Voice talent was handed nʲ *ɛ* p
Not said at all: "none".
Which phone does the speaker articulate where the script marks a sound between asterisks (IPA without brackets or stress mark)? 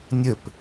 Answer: ɘ